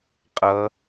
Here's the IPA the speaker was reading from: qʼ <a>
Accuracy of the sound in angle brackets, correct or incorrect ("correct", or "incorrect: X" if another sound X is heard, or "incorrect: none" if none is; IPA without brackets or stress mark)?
incorrect: ʌ